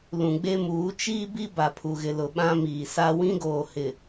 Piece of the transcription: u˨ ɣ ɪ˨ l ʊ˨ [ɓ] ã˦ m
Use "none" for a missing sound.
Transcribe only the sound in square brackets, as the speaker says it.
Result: ɓ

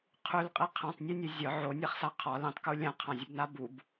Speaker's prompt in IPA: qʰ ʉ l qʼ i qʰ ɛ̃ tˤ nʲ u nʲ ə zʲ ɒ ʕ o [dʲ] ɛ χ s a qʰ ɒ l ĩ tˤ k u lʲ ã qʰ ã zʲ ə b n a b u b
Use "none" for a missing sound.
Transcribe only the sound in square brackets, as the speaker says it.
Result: nʲ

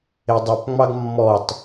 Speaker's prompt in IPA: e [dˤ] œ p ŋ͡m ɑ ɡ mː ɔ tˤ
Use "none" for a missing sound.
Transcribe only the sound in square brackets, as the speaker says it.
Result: dˤ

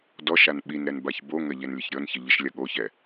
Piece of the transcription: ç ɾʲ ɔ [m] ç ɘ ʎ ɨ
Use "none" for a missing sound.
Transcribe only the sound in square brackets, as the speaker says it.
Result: n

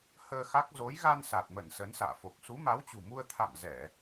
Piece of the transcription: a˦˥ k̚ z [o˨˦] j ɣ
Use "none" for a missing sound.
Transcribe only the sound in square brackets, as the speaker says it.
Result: o˨˦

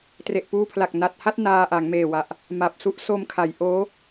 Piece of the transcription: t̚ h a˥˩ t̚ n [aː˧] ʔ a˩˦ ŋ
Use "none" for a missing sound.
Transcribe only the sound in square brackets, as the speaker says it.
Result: aː˧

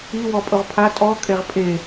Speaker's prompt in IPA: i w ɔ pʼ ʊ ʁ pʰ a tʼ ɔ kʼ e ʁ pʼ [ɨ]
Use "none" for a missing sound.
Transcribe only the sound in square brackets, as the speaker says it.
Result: e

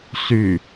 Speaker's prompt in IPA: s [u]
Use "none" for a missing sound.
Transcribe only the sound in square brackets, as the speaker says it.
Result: y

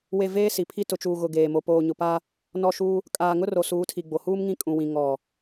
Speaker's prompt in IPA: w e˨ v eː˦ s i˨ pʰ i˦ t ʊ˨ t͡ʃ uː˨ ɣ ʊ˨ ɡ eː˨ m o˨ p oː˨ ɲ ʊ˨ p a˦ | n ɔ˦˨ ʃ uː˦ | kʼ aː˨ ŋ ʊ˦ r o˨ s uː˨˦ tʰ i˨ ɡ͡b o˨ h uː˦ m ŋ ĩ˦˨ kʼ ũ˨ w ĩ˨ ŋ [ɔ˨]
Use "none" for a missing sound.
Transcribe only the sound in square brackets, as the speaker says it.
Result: ɔ˨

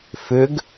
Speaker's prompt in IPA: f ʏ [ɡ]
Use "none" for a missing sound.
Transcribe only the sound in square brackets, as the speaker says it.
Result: ɡ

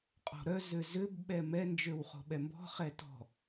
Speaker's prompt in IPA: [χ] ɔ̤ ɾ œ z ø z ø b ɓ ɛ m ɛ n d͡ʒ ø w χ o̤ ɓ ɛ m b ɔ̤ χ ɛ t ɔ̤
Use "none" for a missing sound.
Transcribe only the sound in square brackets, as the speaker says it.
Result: qʼ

